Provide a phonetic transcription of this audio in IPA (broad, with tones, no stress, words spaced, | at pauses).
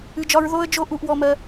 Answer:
ɨ˨d͡ʒɒ˧ɹ ðo˦ə̯ d͡ʒo˦ ʔu˧ʔwɔ˧mɜ˧